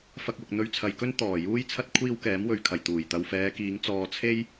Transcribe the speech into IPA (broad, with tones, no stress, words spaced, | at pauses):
fɐ˧k̚wʊ˨k̚ n̪ɵ˧ɥt͡sʰɐ˨jkɵ˥n t̪ɔː˨˩ juː˥jt͡sʰɐ˥t̚ kʷʰiː˧w kɛː˨˥mwɵ˨ɥkʰɐ˨˩j t̪uː˨˩j t̪ɐ˨wfɛː˨˧kiː˨˧ŋ t͡sɔː˨ t͡sʰe˥j